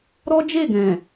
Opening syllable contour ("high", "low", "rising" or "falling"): high